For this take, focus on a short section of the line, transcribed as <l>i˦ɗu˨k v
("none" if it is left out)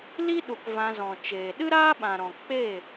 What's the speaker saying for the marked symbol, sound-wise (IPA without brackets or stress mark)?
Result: l